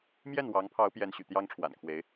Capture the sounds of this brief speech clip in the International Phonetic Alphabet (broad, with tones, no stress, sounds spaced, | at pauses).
m j ɛ˥˩ n w ɑ˧˥ ŋ pʰ ɑ˧˥ ʊ̯ p j ɛ˧˥ n ɕ y̰˨˩ t̪ j ɑ˥ ŋ ʈ͡ʂʰ w a̰˨˩ n kʰ w e˧˥ ɪ̯